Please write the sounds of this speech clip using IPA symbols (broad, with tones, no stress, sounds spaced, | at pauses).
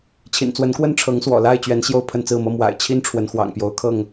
t͡ɕʰ ḭ˨˩ n t͡s w ə˨˦ n k w ə˦ n ʈ͡ʂʰ ɤ˨˦ ŋ s w ɔ̰˨˩ l a˥˨ ɪ̯ t͡ɕ ɥ ɛ˨˦ n ɕ j o˥˨ ʊ̯ pʰ ə˥˨ n t͡s ɹ̩˥˨ m ɤ˦ m w a̰˨˩ ɪ̯ t͡ɕʰ i˦ n ʈ͡ʂʰ w ə˨˦ n x w ɑ̰˨˩ ŋ p j o˨˦ ʊ̯ kʰ ɤ˥˨ ŋ